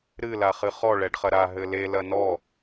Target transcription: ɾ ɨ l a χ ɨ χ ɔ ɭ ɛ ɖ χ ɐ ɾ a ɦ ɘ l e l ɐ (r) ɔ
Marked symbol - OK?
no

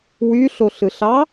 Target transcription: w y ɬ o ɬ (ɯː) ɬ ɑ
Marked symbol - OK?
no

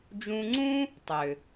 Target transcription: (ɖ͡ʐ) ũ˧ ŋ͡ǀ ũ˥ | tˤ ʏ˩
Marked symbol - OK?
no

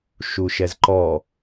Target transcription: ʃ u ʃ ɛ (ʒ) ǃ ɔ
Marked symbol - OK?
no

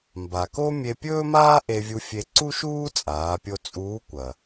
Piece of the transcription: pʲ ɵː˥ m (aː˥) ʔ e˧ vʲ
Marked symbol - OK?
yes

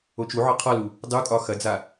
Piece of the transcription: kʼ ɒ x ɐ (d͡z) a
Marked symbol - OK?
yes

